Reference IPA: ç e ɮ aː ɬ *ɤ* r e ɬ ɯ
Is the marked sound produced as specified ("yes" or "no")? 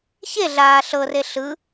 yes